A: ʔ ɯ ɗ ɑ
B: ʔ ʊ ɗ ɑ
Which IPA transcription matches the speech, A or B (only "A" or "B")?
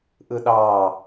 A